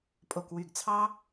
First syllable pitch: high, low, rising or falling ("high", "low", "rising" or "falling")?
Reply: low